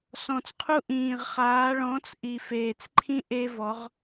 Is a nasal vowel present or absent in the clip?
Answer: present